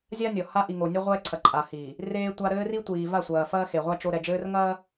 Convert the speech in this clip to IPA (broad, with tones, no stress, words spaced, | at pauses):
zʲa˦nʲɔ˨ha˦ ʔi˨ŋo˨nʲɘ˦ ʁʷɛː˦ǀʰɐ˨ ǃʼa˨hi˨ | reː˦tʷa˦ ɾɘː˦ri˦tʷiː˨va˦˨ sʷɐː˨ fɐː˦xe˨ʁʷa˦ t͡ʃo˦ ɾɛ˨d͡ʒɘː˦rŋɐː˦